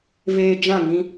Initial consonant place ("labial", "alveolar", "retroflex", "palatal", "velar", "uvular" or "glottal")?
labial